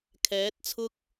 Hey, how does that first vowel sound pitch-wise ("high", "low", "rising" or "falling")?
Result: rising